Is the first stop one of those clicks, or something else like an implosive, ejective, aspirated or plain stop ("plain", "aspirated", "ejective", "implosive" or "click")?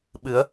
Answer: implosive